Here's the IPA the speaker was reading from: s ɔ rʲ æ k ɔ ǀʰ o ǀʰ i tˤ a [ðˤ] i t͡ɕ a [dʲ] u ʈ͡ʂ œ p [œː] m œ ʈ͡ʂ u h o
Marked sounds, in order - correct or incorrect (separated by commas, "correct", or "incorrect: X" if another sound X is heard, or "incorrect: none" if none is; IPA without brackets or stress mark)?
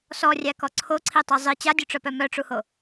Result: incorrect: zˤ, correct, incorrect: œ